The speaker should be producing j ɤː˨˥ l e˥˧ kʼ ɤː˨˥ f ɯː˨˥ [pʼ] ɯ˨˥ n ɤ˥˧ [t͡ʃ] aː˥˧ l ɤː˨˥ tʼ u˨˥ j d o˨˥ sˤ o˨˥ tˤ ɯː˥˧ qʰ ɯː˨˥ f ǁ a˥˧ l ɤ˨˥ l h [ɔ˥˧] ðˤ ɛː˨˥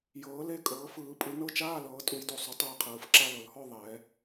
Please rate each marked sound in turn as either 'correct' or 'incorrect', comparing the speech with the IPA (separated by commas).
correct, correct, correct